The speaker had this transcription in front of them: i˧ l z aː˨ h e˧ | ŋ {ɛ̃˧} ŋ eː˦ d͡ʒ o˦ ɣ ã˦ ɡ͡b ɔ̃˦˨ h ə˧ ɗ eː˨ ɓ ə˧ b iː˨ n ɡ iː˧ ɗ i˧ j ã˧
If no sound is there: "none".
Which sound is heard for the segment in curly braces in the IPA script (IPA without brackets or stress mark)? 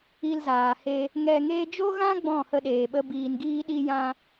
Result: ɛ˧